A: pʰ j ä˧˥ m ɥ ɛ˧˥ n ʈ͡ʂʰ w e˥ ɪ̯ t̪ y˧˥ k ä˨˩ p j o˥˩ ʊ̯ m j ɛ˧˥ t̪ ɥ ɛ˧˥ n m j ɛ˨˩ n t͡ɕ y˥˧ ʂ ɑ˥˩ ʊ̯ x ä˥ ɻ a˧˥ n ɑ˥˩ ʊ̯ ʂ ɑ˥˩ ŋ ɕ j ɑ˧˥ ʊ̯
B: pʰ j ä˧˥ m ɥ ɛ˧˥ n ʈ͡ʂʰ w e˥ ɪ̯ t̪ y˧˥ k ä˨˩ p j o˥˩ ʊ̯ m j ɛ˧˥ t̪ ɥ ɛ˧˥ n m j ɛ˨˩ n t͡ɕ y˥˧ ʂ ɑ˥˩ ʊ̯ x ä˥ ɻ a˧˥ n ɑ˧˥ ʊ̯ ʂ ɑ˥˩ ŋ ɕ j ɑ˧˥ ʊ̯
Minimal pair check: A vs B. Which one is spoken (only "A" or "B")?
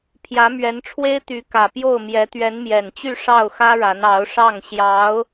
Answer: B